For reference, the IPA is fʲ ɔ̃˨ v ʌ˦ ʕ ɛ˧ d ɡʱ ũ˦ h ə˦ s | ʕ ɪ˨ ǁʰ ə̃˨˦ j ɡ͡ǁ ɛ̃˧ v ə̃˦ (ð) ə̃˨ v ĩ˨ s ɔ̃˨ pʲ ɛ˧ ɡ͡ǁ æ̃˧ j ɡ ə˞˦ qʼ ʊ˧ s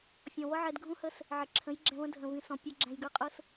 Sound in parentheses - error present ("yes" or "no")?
yes